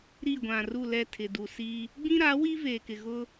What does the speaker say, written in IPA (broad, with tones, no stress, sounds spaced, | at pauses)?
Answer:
ɾ i˦˨ ɡʷ ã˨ r u˦˨ l ɛ˦˨ tʰ ɪ˨ d u˨ s i˦ | ɡ͡b ĩ˦ ɾ a˨˦ w i˦ v eː˨ k ɪ˨ ɣ ʊ˦